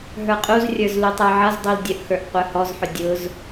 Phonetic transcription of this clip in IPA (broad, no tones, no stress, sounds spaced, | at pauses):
ɦ ə˞ qʼ u z rʲ ə˞ z l u tˤ ə˞ ʕ ʌ z dˤ u l dʲ ə ʔ x ə˞ ʔ qʷ ə˞ h ɔ z ħ ʊ dʲ ʊ z